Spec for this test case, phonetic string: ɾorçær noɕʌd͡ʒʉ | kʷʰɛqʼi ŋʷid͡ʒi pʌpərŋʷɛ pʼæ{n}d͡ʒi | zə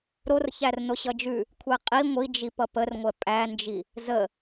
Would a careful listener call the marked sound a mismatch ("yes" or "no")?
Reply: no